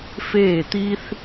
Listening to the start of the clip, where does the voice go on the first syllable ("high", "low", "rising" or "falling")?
falling